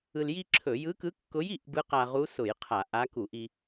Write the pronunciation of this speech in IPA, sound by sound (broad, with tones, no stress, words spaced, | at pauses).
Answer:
ɯ˧lji˥ǁʰɵ˧˩˧ jɯ˧˥kɯ˧˥kːʊ˧˥j i˥˧ʔbɯ˧˥qa˧ ʁu˧˥sʊ˧˩˧j qʰa˧˩˧ʔa˧˥ ku˧˩˧ʔi˧